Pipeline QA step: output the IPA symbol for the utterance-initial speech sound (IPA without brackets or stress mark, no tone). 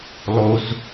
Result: lˠ